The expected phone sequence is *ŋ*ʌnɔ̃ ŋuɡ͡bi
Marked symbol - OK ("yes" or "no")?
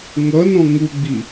yes